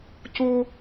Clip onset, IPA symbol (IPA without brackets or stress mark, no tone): c